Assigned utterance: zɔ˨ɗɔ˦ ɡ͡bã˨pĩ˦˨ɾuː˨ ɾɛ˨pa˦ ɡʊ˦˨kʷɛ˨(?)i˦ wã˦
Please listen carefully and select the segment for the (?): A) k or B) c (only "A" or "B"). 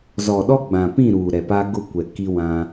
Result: A